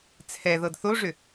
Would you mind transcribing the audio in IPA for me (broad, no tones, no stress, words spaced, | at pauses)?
t͡sʰɛðɤd θoʐʏ